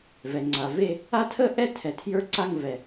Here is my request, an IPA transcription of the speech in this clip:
v ɛ˩ ŋ͡ǀ a˩ v e˥˧ | a˥˧ tʰ ə˥˧ ʔ ɛ˥˧ tʰ ɛ˩ tʰ j ə˞˥˧ ǀ a˥˧ ŋ v ɛ˩

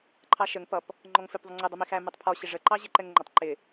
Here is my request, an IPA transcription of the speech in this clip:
ǃʰ ɑ ʃ ə ŋ p ʌ p | ŋ͡ǃ ɔ ŋ f ɪ p ðˤ ə ŋ͡ǀ ɪ dˤ ɛ m i x æ m ɛ tˤ pʰ ɔ ɕ ɪ ʐ ə ǃ ɑ ʑ ɪ ǃ ɛ ŋ ŋ͡ǃ ə tˤ ǃ ɪ

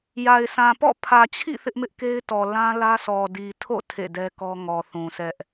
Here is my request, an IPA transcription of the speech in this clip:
j a˨ ɪ̯ sʰ ã˨ p ɔ̰˦˨ pʰ ä˨ t͡ɕʰ ḭ˦˨ θ ɪ˦ ʔ m ɪ˦ ʔ k e˦ ɪ̯ t ɔ˨ l ã˦ l ä˦ s ɔ˨ d i˨ tʰ o̰˦˨ tʰ ḛ˦˨ d ɛ˦ k ɔ˦ ŋ ɔ˨ θ ũ˨ sʰ ɛ˦ ʔ

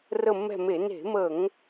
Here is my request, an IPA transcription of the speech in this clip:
r ə˦˨ mː ɛ̤˦˨ m e˧˩˧ n e̤˧˩˧ m ə˧˩˧ ŋ

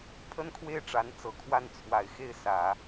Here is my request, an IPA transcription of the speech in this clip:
pʰ ə˥ n kʰ w e˥˩ ɪ̯ ʈ͡ʂ a˧˥ n t͡s ɤ˨˩ kʰ w a˥˩ n t͡sʰ w a˨˩ ɪ̯ x e˥˩ ɪ̯ s ä˨˩˦

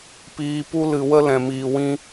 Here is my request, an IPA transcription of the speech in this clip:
p iː˧ p u˦ l ɨ˧ w ə˦ l ɛ̃˨ m iː˨ w ĩ˧

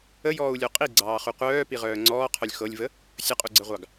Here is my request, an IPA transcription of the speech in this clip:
ə j ɔː u̯ lʲ o qʼ i ɡ͡ǀ ɑː χ u qʷ œː p i ʁ œː ŋ͡ǀ ɔː qʰ œ lʲ x ɤ lʲ v ə | sʲ ə qʼ u ɡ͡ǀ ə ʁʷ ɑ ɡ

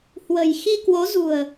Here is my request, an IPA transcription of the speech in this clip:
h w ə̤˨˩ j x i˧ k w o˨˦ z ṳ˨˩ ə̯

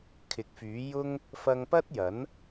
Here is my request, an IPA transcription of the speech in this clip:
kʰ ɪ˨˥ k̚ f yː˨˥ j ʊ˥ ŋ | f ɐ˧ ŋ p ɐ˥ t̚ j ɐ˨˥ n

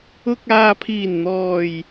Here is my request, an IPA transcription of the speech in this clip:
ʊ˨ k̚ aː˨ pʰ iː˨˩ n n̪ ɔː˨˩ j

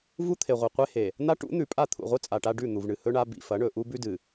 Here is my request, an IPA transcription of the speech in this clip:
v u˦ t̪ʰ e˨ ʁʷ e˨ qʷ e˦ h e˨ | n̪ a˦ ʈ ṵ˨˦ n̪ ʉ˨ pʼ a˦˨ t̪ʰ ṵ˨ ʁʷ ɨ˦ t͡sʼ a˨ ʈ a˦ ɖ ʉ˦˨ n̪ u˨ v ɳ ɨ˨ h ɵ˦ ɳ a˦ b ḭ˨ f ɐ˨˦ ɳ ɵ˨ ʔ u˦ b ʉ˦ d ɨ˨

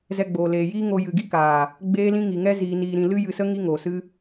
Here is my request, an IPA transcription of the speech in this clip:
z ɛ˧ ɡ͡b oː˨ l eː˨ j iː˦ ŋ o˧ j ɨ˨ ɡ i˦ k aː˨ | ɡ͡b eː˦ l ĩ˦ ŋ i˨ ŋ ɛ˦ z iː˧ n iː˧ ɾ ĩ˧ l ɨ˦ j ɨ˧ s ə˦ ŋ i˦ ŋ oː˨ s ɨ˦

